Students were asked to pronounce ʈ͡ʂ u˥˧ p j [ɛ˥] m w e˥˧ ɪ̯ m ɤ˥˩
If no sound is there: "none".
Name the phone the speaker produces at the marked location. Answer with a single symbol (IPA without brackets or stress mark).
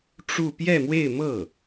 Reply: ɛ˥˧